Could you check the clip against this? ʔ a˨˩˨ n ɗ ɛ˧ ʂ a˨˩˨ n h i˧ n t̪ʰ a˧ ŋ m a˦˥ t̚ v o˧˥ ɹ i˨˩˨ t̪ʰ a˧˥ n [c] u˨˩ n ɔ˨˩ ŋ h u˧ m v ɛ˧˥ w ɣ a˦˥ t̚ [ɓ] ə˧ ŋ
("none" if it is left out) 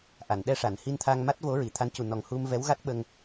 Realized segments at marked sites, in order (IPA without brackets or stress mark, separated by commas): c, ɓ